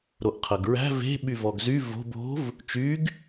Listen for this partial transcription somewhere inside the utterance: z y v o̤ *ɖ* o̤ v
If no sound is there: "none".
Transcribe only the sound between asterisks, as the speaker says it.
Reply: b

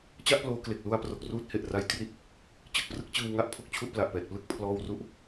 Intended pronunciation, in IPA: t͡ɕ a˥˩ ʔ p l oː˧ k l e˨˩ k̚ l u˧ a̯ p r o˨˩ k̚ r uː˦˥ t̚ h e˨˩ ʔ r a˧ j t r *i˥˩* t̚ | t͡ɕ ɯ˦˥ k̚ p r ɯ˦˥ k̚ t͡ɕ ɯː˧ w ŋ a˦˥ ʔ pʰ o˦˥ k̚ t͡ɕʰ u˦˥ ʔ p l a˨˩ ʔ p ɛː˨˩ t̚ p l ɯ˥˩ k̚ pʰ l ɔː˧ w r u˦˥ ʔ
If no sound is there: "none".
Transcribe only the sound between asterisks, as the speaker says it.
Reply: i˥˩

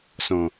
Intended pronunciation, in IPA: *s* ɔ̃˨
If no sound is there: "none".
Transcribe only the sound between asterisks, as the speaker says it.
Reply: s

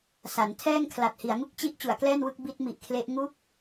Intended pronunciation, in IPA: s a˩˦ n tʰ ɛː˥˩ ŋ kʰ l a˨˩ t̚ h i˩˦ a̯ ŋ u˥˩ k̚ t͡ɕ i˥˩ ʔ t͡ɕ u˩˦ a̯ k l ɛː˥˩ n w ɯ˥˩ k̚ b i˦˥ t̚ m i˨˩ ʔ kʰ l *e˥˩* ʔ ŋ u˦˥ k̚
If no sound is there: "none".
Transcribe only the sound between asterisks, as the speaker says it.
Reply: e˦˥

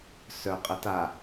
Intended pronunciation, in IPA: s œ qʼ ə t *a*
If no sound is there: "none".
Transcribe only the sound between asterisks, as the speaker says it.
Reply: a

